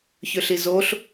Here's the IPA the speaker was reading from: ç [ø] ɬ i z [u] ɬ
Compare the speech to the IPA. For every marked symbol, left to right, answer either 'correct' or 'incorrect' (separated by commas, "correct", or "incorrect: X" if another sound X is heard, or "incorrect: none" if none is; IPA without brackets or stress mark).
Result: correct, incorrect: o